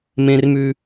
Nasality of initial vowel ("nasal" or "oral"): nasal